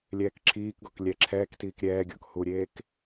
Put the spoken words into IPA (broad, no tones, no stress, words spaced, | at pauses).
lʲɛːkǁʰiːkɡɔk lʲɛǁʰɛːktiːk ɾʲɛːɡʲɔ̰k huɾʲeːk